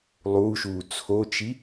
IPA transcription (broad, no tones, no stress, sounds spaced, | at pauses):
lˠ uː ʃ uː t͡sʰ o t͡ʃ i